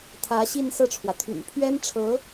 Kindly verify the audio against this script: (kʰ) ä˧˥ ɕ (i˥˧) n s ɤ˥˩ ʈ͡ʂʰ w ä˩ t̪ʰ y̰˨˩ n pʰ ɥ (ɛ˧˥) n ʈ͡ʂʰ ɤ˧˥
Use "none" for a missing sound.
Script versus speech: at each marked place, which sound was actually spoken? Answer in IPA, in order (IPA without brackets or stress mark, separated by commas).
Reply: t̪ʰ, i˥˧, ɛ˥